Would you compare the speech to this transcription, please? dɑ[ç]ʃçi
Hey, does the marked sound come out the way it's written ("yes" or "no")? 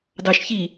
no